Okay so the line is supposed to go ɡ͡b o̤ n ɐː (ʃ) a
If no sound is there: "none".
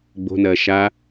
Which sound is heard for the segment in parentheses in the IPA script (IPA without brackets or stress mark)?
ʃ